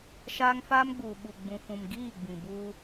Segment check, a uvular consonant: absent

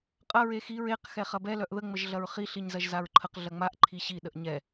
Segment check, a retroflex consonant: absent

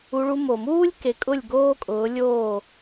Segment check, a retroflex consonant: present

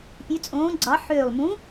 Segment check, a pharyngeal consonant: present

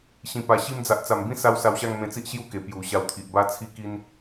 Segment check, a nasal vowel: present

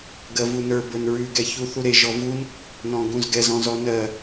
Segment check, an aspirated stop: absent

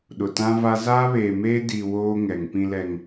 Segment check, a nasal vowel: present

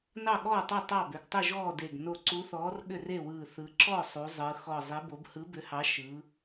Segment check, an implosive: present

